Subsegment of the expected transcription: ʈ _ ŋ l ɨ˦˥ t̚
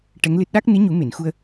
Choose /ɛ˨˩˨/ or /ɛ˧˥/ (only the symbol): ɛ˧˥